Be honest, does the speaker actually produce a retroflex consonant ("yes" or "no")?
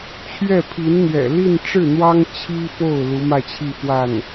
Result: yes